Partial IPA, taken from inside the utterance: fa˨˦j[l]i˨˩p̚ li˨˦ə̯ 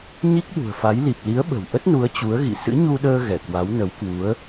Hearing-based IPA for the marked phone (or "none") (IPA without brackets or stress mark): l